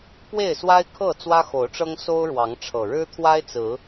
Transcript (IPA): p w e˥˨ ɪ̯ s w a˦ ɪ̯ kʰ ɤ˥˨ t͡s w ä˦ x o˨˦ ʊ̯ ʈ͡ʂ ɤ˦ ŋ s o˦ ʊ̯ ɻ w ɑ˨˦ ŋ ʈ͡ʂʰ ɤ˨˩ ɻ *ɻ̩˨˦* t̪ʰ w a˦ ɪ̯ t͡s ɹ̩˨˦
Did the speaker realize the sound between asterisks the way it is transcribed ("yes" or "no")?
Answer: no